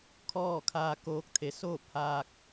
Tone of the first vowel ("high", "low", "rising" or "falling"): falling